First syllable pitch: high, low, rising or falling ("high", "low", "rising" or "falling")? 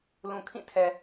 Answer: low